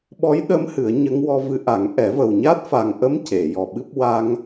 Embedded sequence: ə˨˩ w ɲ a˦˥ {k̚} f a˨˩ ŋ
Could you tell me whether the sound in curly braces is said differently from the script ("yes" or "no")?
yes